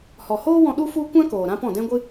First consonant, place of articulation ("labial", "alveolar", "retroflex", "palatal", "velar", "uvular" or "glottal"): glottal